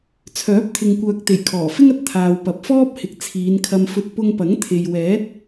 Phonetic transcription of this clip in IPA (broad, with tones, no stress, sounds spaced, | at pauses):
t͡sʰ œː˨˥ p̚ t̪ʰ ɪ˨ ŋ kʷ œː˨ k̚ t̪ e˨˩ j kʰ ɔː˨˩ f ɪ˥ ŋ ɐ˨˥ t̚ t̪ʰ aː˨ w p ɐ˨ p̚ f ɔː˥ p̚ h ɪ˨ k̚ t͡sʰ iː˨˧ n kʰ ɐ˧ m f ɵ˧ t̚ p ʊ˧ ŋ p ɐ˨˥ ŋ t̪ʰ e˨ j w ɛː˨˥ t̚